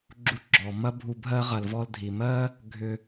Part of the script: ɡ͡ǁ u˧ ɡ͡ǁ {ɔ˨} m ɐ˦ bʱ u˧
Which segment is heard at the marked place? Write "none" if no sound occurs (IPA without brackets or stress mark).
ɔ˨